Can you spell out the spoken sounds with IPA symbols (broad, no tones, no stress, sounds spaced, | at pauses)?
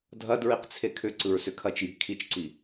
dʱ ɐ d ɹ i q t͡sʰ e kʰ ʏ ǀ ɯ ɹ s ʏ kʰ ɐ t͡ʃ j i̤ kʰ i t͡ʃ ǀ i